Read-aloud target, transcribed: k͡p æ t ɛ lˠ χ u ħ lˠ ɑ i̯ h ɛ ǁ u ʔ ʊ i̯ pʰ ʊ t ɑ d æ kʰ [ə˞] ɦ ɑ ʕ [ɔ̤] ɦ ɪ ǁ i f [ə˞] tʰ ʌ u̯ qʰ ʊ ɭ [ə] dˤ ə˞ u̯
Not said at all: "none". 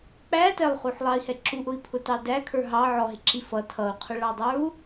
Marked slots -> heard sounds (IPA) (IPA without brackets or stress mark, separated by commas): ə˞, ɔ, ʌ, ɑ